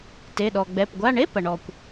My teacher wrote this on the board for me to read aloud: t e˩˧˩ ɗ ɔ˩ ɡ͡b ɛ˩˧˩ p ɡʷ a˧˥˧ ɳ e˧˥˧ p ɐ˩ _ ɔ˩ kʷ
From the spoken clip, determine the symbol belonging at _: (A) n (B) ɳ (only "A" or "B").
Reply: B